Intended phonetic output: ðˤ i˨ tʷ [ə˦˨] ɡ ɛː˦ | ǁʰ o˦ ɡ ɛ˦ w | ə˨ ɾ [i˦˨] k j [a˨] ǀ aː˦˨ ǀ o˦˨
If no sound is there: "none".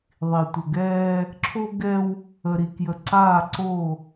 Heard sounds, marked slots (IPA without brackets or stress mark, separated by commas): ə˨, i˨, ə˨